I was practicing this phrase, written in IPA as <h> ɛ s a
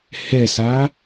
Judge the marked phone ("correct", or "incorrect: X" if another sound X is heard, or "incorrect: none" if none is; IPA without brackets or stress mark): correct